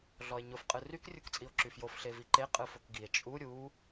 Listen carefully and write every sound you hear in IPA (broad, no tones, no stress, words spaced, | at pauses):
ɮɔe̯ɲʊf qʼɯryk rʲukt͡sʼio̯ǁyfjof ɬeviǃe qʼɯfokɡie̯ t͡ʃʼu ɾʲu